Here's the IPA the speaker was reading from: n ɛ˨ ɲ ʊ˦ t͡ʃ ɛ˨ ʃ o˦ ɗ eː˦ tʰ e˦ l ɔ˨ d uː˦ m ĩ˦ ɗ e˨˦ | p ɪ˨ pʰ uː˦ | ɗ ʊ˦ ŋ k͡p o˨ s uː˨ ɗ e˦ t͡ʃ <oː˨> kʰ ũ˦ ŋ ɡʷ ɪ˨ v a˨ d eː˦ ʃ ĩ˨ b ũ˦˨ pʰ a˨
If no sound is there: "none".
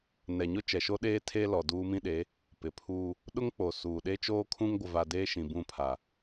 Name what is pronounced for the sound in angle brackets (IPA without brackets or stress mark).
oː˦